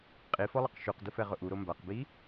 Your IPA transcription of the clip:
qʼ i f ɔ lˠ ʊ q ʃ u q d ʊ f ɛ ʁ ʊ ʔ u ɾ o m b a q b i

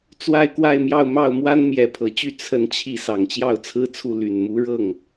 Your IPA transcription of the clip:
t͡s w a˥˧ ɪ̯ k w a˥˧ ɪ̯ m j ɑ˥˧ ʊ̯ m ɑ˥˩ ʊ̯ m w a˥ n m j ɛ˧˥ pʰ ɤ˨˩ t͡ɕ y˥˧ t͡sʰ ə˥˧ n t͡ɕʰ i˥˩ s ɑ˨˩ ŋ t͡ɕ j ɑ˥˩ ʊ̯ t͡sʰ ɹ̩˥ t͡sʰ u˥˩ l y˨˩ n m u˧˥ ɻ ɤ˥˩ ŋ

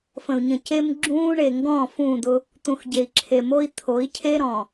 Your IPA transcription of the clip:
f ə̃˨ u̯ ɲ ə̃˨ c e˦ m ɡ͡ǁ ũː˦ ɳ e˨ ŋ ɡ ɔ̃˦˨ f ũ˦˨ d̪ ʊ˦ | t̪ ũ˨ x ɟ e˨ i̯ ǁʰ e˨ m o˦ i̯ t̪ʰ o˨˦ i̯ cʰ e˦ ɾ ɔ̃˨

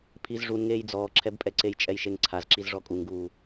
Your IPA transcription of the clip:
pʰ i z ʐ u n ŋ eː j d͡z ɔː ǁʰ ɛ b pʼ ɛ ǀ e j t͡ʃʼ ɛ j ʃ e ŋ ǀʰ a z ǁ i z ʐ ɔ kʼ u ŋ ɡ uː

